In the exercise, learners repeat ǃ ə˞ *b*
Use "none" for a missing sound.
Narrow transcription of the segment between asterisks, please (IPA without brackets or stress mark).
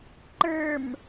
m